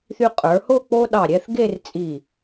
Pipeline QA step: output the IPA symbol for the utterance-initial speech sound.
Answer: θ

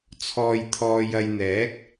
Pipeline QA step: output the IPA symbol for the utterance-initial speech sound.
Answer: t͡sʰ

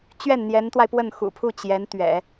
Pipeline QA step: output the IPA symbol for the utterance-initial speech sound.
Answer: t͡ɕ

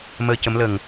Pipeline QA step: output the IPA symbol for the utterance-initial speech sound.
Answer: m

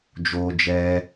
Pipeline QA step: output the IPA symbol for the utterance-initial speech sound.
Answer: d͡ʒ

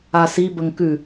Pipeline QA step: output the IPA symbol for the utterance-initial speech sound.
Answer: a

